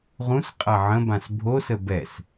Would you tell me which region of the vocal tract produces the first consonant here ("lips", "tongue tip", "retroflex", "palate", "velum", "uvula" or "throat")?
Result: uvula